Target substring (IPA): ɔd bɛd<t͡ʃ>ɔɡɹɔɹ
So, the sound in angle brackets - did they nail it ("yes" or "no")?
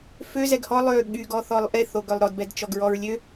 yes